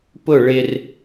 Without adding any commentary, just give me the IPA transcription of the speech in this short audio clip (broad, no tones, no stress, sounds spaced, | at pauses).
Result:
p ʊ ɭ ɪ r